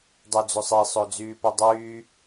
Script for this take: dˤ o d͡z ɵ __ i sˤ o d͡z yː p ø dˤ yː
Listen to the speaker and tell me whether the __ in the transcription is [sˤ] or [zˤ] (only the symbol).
sˤ